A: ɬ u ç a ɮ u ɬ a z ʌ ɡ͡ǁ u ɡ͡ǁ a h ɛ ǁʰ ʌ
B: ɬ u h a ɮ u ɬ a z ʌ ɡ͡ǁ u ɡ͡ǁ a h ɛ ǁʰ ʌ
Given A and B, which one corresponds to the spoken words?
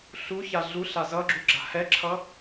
A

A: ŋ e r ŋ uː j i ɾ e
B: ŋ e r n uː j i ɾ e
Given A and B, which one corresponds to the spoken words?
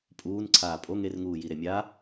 A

